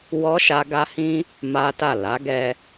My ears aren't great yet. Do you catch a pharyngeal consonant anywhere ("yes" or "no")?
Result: no